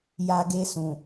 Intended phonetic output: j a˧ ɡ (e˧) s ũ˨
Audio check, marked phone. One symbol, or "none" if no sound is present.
e˧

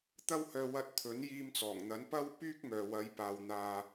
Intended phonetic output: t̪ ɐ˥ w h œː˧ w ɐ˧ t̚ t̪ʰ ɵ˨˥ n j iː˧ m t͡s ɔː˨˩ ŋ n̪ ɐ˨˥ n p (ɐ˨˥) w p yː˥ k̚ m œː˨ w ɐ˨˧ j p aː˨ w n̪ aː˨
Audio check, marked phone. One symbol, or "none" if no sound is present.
ɐ˥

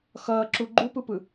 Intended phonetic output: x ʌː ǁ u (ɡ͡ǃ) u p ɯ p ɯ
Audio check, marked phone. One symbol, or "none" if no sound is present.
ɡ͡ǃ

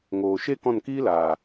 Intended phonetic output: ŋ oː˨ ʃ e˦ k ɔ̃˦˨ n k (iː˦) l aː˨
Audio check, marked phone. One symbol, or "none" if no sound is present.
iː˦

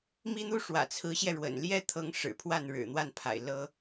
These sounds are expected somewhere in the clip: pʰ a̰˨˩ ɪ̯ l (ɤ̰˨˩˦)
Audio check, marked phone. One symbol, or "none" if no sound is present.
ɤ˥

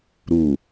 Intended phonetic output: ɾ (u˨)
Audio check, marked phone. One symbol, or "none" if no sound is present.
u˨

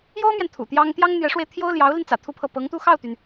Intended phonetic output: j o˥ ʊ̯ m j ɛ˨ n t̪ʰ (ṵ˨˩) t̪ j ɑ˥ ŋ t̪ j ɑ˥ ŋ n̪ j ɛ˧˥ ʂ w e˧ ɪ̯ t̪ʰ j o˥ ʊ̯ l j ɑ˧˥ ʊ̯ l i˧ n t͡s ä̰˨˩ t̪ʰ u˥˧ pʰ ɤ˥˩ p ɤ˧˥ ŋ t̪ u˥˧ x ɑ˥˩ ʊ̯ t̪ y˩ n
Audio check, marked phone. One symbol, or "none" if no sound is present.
ṵ˨˩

